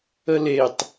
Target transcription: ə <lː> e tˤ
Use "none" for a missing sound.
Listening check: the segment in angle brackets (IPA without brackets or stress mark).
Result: l